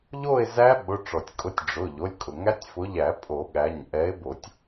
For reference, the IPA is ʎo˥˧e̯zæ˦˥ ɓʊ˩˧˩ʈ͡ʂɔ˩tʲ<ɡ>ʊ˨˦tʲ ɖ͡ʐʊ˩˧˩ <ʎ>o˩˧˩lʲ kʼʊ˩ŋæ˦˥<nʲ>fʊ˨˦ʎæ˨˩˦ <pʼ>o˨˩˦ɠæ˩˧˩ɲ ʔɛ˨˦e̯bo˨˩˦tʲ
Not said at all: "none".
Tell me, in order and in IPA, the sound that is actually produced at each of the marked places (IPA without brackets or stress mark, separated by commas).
kʼ, ʎ, tʲ, pʼ